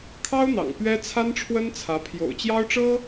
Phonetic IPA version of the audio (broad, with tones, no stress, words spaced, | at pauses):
kʰɑ˥ʊ̯n̪ɑ̰˨˩ŋ pɥɛ˥ t͡sʰa˥nʈ͡ʂʰwə˥nt͡sʰä˧˥ pʰjo̰˨˩ʊ̯t͡ɕjɑ˥ʊ̯ʈ͡ʂɤ˥